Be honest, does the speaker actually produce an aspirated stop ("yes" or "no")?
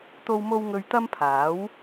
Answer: yes